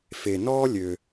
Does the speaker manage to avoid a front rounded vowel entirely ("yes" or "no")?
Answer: no